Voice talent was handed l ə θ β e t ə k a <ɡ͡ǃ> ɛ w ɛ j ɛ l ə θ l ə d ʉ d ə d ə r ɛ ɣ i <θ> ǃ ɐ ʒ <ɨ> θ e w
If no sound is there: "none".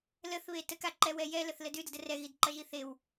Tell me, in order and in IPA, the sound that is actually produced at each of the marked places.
ǃ, d, i

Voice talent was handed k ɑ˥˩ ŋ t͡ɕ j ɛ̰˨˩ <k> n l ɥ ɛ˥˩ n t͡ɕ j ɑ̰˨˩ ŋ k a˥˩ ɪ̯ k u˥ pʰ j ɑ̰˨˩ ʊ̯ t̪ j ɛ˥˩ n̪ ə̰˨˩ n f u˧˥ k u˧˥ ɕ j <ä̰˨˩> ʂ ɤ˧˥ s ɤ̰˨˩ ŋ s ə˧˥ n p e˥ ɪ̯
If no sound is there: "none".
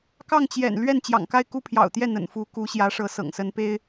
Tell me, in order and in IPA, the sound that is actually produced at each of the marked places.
none, ä˧˥

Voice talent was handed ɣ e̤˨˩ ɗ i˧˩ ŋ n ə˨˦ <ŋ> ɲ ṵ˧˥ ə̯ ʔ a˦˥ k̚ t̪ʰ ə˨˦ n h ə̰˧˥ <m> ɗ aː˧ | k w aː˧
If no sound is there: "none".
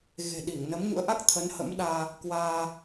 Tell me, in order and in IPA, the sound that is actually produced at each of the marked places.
m, m

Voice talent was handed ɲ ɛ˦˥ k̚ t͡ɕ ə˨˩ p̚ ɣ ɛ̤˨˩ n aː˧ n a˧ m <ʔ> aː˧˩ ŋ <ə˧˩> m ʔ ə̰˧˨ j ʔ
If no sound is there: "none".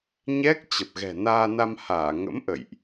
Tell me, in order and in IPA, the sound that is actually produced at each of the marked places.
h, ə̰˧˥

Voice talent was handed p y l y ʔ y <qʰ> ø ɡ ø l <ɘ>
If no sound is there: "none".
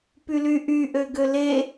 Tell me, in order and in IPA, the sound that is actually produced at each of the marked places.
ʔ, e

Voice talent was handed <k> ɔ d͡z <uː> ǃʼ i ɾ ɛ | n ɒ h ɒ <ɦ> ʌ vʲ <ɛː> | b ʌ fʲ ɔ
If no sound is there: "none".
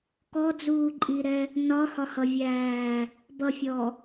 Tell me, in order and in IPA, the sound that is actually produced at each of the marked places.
k, uː, h, æː

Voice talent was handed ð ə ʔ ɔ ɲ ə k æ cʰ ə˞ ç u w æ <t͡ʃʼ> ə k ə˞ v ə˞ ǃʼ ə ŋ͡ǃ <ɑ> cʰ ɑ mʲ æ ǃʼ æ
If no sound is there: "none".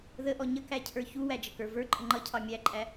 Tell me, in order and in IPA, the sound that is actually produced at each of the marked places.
d͡ʒ, ʌ

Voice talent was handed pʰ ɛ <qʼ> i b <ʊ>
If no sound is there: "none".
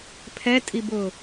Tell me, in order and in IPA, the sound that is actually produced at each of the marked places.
tʼ, ʊ

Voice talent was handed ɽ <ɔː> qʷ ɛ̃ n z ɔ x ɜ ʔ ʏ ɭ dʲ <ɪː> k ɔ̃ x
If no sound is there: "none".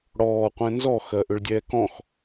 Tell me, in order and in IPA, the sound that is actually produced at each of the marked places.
ɔː, ɛː

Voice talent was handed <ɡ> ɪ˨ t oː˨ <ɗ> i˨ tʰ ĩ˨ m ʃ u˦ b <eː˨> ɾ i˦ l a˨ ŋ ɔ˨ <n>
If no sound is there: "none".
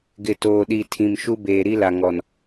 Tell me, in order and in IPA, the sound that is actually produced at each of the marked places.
ɡ, ɗ, eː˨, n

